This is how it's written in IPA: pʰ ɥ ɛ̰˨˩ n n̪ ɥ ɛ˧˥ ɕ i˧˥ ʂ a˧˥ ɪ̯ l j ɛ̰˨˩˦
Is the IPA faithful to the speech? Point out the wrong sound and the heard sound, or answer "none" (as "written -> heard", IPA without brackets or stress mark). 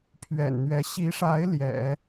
none